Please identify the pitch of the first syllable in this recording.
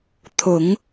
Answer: low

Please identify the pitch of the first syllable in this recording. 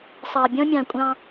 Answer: low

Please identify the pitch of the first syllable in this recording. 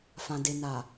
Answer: low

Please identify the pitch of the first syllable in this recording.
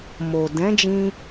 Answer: low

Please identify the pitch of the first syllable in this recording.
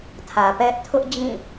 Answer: low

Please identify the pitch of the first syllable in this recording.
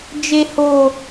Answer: high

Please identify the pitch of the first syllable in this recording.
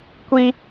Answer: high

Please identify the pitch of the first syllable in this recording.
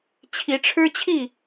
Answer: rising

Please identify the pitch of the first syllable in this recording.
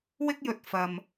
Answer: high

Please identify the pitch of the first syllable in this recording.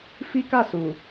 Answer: high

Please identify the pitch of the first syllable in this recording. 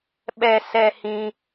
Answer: low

